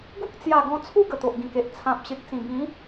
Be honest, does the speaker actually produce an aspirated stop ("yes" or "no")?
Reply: yes